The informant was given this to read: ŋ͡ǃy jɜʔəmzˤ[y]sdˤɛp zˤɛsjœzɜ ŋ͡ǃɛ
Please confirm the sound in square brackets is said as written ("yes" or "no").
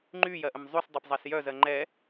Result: yes